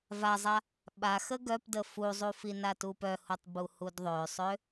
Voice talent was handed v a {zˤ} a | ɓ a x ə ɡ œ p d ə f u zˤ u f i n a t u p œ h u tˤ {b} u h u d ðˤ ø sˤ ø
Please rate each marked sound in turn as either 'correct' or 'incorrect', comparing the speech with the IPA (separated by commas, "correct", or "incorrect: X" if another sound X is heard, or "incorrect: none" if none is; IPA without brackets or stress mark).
correct, correct